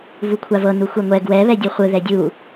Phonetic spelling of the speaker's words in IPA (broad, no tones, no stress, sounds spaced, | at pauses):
v u kʷʰ a v ɤ n u xʷ ɛ ŋʷ ɛ ɡ w ɛ β ɛ dʲ u χʷ ɯ ð ɛ dʲ u